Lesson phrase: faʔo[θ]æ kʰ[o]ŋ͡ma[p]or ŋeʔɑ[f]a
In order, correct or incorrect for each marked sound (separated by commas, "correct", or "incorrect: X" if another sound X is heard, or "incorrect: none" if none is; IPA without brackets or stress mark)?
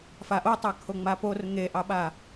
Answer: incorrect: tˤ, correct, correct, incorrect: ɓ